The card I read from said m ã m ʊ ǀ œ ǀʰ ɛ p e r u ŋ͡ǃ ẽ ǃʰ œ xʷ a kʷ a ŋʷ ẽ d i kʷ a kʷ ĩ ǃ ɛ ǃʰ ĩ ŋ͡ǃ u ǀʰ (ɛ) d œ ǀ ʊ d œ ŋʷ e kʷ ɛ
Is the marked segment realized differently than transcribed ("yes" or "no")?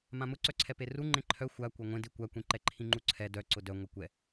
no